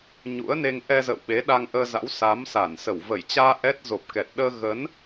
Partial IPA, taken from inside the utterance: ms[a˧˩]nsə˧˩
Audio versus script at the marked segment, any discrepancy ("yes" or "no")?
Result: no